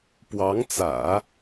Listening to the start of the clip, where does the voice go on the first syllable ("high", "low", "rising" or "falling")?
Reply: rising